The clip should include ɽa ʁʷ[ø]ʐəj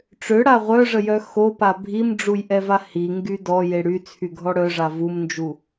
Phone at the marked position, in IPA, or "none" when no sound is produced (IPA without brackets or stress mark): œ